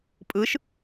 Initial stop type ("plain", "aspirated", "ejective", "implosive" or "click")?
ejective